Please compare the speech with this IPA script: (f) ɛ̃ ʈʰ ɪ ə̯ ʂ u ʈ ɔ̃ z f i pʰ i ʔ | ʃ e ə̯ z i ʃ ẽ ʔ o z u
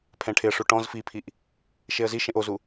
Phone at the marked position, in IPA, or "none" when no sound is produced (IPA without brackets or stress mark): pʰ